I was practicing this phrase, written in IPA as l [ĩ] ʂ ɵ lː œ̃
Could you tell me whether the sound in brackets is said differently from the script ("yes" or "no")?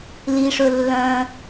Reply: yes